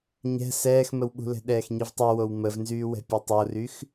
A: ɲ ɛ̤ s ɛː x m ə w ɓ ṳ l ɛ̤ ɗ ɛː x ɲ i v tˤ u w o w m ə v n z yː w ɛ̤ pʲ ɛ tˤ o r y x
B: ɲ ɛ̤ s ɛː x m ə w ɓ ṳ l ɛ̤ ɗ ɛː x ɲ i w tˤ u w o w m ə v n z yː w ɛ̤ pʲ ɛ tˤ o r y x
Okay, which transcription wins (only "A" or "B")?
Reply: A